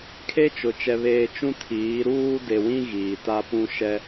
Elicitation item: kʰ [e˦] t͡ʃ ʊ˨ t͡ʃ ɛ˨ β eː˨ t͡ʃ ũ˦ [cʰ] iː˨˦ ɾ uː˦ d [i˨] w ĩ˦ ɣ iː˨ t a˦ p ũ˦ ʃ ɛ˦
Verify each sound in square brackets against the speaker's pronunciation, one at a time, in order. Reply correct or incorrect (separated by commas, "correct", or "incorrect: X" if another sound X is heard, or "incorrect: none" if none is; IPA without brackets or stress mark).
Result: correct, incorrect: tʰ, incorrect: e˨